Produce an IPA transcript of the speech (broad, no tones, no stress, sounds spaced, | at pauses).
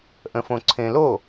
ʔ ə̃ f õ ǀʰ ẽ l o